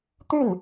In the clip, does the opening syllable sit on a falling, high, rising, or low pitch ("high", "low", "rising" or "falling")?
falling